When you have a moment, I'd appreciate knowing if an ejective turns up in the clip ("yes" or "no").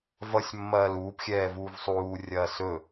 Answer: no